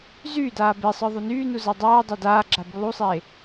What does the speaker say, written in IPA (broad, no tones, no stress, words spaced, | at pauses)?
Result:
zyːdaː besˤə˞ ðˤunyːnu zadˤaːdˤa daːɡ͡ǁa bulˠusˤeː